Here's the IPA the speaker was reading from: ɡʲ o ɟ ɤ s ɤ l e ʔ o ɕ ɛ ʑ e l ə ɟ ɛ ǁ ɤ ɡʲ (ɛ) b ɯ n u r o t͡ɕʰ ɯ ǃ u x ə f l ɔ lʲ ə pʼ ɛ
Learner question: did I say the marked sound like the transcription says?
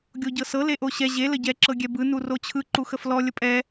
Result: yes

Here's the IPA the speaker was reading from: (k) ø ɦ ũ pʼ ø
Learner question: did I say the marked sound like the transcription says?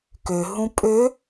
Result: yes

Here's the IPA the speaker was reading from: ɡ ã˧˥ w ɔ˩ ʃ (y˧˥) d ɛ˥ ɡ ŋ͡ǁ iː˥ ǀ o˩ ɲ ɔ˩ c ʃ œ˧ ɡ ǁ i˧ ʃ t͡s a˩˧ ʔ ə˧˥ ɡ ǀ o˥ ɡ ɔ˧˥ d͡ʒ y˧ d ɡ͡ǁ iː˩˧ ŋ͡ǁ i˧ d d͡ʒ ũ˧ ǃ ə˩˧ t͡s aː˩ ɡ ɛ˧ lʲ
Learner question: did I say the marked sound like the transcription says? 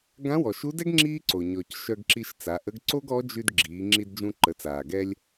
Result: no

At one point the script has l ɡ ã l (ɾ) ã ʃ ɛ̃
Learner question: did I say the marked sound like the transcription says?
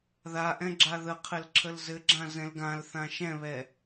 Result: no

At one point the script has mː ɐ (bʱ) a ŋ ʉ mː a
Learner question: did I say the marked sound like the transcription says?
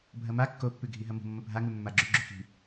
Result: yes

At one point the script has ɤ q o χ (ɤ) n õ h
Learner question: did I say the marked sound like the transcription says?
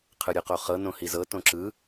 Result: yes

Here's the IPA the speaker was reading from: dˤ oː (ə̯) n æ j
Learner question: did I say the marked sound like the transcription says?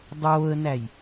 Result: yes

